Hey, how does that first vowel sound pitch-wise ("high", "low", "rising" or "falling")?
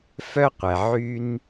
high